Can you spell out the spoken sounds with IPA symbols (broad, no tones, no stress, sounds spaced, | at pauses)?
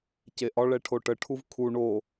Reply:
c e ʔ ɒ ɭ ɛ ʈʰ o ʈ ə ʈʰ u v kʰ u ɳ o